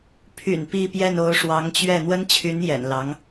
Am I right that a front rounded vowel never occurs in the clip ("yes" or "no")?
no